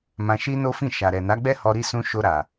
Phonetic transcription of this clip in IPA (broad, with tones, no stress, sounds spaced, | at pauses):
m ã˧ ʃ i˦ n o˦ f ĩ˦˨ ʃ a˨ ɾ ɛ˨ n a˨˦ ɡ͡b ɛ˦ h ɔ˧ ɾ i˧ s ũ˧ ʃ o˧ ɾ a˨